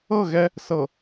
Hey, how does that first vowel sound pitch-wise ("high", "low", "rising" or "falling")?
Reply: falling